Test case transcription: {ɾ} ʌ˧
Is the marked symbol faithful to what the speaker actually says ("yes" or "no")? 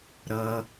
yes